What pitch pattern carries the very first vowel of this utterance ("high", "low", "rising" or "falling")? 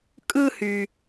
high